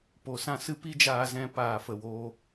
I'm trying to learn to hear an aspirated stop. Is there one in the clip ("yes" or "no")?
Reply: no